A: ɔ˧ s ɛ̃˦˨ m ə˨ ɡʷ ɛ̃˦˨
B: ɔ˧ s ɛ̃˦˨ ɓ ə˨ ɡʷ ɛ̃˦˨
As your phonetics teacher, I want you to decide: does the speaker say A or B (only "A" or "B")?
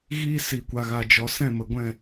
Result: A